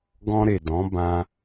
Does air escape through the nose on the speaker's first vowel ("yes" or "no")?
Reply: yes